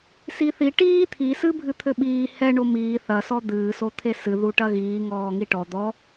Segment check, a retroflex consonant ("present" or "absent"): present